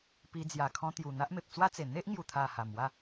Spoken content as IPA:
pi˧ d͡zja˨˩kʰɔ̃˧t̪ju˨˩ n̪a˦ʔme˨p̚t͡swa˦t͡se˨˩ n̪e˦ʔŋju˨˩t̪ʰa˨˩ ha˨˩mwa˥˧

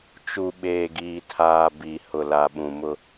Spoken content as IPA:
t͡ʃu˨ ɓeː˨ɡiː˨tʰaː˨ bi˨ hʊ˨la˨ɓũ˨mʊ˦

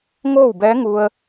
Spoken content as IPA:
ŋoː˥˨wbɛː˧˥ŋu˧ə̯

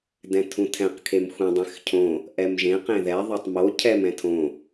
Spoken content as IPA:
dɛ̃tʰũtʰɛ̃q kʰemxʷẽ dˤẽxcʰõ | ʔɛmʒẽ qẽðɛ ðˤotˤmo cʰɛm ɛ̃tʰõ

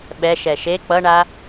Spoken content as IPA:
ɓɛʃɛ ʃe k͡pʌɳa

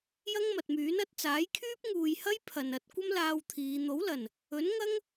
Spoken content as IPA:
jɐ˥ŋmɐ˨t̚myː˨˥n ɐ˨˥t̚t͡saː˨˥j kʰyː˥p̚ŋuː˨jhɐ˥j pʰɐ˨nɐ˨˥t̚ kʷɐ˥mlaː˧w t̪ʰiː˨˧ n̪o˨˥wlɐ˨˩n | ɵ˨˥nŋɐ˥ŋ

